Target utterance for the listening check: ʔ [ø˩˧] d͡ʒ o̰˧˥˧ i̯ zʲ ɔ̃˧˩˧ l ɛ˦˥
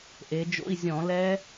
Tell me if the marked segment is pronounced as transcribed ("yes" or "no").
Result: no